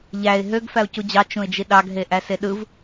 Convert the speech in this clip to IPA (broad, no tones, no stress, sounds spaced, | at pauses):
ʎ æ ɪ̯ ɦ ø ɡ f æ ʊ̯ c u d͡ʑ ɑ t͡ʃ ũ ɪ̯ d͡ʒ i ɗ ɑ ɡ ɦ e ʔ æ s e ɗ ɯ v